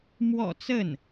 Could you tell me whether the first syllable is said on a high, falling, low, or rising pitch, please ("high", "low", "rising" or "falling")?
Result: low